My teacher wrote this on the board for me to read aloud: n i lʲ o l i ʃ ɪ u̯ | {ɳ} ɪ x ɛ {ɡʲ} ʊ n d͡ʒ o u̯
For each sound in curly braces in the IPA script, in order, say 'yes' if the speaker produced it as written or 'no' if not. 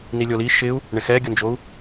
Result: yes, yes

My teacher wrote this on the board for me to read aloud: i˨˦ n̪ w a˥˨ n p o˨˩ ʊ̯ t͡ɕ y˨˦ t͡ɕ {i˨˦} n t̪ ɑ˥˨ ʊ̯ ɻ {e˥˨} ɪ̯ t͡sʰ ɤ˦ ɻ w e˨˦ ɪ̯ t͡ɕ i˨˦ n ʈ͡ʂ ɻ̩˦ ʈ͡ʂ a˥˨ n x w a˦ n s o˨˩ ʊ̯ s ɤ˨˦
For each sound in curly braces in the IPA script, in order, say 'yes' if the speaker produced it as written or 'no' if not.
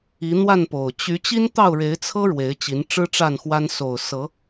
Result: no, no

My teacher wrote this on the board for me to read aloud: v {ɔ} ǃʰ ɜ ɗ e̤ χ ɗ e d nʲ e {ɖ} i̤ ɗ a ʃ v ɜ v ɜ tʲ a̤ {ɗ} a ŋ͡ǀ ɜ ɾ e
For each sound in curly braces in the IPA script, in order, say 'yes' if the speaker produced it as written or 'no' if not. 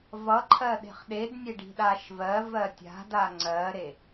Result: no, yes, no

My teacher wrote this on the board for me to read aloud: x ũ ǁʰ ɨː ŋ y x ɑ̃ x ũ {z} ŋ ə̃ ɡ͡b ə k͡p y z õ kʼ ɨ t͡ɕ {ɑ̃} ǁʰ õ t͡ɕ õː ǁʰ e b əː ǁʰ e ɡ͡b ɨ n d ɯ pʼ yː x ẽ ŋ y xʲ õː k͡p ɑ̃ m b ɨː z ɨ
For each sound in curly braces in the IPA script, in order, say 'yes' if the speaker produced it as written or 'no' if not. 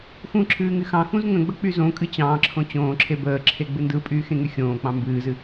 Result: yes, no

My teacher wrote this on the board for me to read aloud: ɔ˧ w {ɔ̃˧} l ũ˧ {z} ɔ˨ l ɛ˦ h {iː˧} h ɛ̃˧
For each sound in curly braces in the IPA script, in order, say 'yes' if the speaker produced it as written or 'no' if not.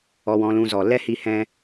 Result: yes, yes, no

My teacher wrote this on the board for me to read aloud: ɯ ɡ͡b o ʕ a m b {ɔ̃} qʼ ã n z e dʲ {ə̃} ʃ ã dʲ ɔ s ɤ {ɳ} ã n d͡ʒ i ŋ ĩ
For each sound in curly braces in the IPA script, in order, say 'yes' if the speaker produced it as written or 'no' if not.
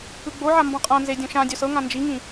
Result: yes, no, no

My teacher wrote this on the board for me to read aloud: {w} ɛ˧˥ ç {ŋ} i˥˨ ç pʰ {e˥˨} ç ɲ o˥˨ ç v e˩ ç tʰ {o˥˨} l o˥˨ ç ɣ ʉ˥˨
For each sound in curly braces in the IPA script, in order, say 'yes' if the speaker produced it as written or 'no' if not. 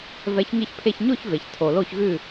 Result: no, yes, yes, no

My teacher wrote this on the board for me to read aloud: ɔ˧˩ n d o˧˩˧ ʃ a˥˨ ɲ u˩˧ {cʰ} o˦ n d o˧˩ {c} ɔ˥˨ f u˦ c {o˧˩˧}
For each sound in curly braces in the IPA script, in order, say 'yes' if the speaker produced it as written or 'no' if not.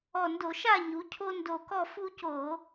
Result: yes, no, yes

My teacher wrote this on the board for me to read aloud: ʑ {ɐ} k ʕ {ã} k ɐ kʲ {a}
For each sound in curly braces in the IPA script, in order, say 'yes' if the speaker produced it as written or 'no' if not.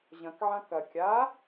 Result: no, yes, yes

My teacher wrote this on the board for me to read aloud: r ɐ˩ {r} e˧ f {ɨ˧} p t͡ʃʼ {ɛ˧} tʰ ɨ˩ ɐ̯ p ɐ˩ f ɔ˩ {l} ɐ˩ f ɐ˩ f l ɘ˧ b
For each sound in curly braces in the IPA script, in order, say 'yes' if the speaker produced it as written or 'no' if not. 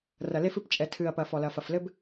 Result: no, yes, no, yes

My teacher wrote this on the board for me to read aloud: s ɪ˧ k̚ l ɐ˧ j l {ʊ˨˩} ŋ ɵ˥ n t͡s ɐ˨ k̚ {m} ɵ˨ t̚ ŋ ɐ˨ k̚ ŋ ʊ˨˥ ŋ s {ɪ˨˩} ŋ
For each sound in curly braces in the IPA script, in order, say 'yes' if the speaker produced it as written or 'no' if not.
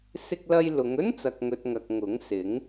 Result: no, no, no

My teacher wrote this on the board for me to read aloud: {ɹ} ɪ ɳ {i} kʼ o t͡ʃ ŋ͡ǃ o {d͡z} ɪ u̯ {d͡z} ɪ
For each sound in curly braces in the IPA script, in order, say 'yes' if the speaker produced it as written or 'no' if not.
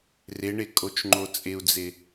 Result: no, no, no, yes

